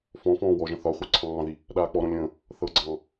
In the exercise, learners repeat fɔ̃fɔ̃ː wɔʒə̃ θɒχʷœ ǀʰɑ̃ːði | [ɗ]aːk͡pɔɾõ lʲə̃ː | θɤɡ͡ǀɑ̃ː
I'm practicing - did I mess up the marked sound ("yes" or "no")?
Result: no